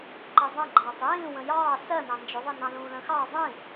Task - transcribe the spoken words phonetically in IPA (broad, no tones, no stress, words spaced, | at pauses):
ǃəzˤə̃ɡ͡ǃɑːtˤ jĩː wə̃jɑː sɜnɑ̃ nd͡ʒʊðˤinɑ̃ lũːlə̃xɑː zˤĩ